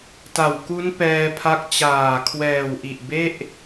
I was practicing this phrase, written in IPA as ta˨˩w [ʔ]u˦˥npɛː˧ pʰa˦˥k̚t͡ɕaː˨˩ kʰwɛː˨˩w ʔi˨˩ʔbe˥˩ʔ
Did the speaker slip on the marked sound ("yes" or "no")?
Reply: yes